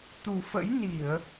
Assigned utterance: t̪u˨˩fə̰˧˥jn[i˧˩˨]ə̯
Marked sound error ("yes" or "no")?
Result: no